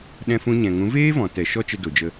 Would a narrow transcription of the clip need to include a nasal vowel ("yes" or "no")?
yes